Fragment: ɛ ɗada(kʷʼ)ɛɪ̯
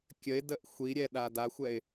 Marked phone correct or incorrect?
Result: incorrect